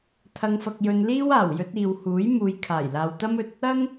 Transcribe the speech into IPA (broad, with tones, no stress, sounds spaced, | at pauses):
t̪ʰ ɐ˧ ŋ f ɐ˧ k̚ j ɵ˧ n l iː˥ w aː˨˩ w j ɵ˧ t̚ iː˨ w h uː˨˥ j m uː˨ j kʰ aː˨˩ j l aː˨ w t̪ ɐ˥ m ɵ˧ t̚ | ɐ˥ ŋ